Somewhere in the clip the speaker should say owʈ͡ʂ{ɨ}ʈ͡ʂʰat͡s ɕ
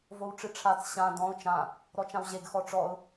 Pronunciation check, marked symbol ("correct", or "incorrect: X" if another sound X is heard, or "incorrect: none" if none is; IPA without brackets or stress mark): correct